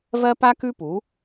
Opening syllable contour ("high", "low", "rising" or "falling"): high